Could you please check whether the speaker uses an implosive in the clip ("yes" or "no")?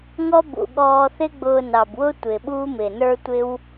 yes